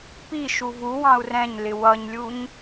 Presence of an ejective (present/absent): absent